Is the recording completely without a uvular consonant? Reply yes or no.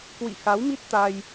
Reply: yes